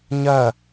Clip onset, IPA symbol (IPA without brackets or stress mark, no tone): ɲ